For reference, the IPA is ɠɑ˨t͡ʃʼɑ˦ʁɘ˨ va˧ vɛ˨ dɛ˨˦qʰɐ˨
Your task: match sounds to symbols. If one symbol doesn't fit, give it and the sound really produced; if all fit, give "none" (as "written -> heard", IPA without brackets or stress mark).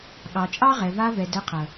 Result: ɘ˨ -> ɛ˨